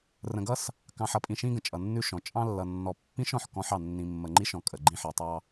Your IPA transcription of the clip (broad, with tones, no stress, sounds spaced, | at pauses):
r ə̃˨ ɡ ʌ˦ s | k ɑ̃˨ ħ ʌ˨ pʼ ĩ˨ ʃ ĩ˦ ɡ ə̃˨ t͡ʃʼ ʌ˨ nː ʉ˦ ʃ ɔ̃˨ t͡ʃʼ ɑ̃˦ lː ʌ˨ nː ɔ˨ pː ĩ˦ ʃ ɔ̃˨ ħ k ɔ̃˦ ħ ɑ˨ nː ĩ˨ mː ə˨ ŋ͡ǃ i˦ ʃ ɔ̃˨ kʼ ə˨ ɡ͡ǃ ĩ˦ ħ i˨ tˤ ɑ˦